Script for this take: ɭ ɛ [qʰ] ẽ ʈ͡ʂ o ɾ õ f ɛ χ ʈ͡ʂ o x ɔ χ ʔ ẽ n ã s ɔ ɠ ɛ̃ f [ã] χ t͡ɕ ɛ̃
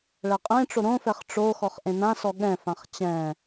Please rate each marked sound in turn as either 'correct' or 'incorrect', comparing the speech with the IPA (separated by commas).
incorrect, correct